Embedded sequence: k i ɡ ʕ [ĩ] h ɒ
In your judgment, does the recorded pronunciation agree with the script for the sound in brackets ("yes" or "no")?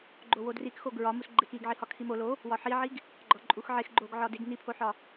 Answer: no